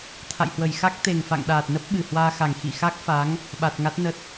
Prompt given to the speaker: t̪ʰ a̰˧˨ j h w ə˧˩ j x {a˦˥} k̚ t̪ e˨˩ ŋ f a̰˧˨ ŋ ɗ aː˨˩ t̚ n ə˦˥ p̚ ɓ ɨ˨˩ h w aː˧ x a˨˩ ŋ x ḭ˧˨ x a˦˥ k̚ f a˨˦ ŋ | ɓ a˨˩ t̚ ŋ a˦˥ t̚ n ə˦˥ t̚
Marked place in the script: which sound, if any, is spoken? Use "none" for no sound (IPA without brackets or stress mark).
a˦˥